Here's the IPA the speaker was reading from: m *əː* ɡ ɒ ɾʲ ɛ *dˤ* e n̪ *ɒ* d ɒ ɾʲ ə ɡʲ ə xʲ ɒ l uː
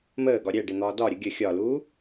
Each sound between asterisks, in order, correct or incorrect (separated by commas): correct, incorrect, incorrect